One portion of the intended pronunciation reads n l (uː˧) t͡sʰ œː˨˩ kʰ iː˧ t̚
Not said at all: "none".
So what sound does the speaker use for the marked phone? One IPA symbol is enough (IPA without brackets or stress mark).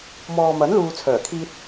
uː˨